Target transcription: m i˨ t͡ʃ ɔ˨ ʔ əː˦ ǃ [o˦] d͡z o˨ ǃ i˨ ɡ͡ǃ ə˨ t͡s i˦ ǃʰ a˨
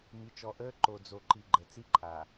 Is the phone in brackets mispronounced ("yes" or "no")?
yes